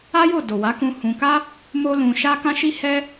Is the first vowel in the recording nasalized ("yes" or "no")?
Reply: no